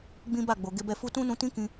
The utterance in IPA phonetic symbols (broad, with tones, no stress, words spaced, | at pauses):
ɡ͡bĩ˦ ba˦˨ɡ͡bo˨ ɡe˧bɛ˧fu˦ tũ˦nũ˧tĩ˦ kĩ˧